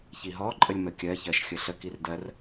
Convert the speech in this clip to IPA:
çiɦɔǃʼəlʲ məkʲɜçɜʃ xʲəɬəkir dɜr

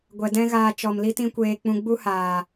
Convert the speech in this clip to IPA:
ɡʷɛ˨dɛ̃˦ɣaː˧ t͡ʃɔ˨mli˦tĩ˦kʷeː˧ k͡pũ˧ɡ͡bu˦haː˨

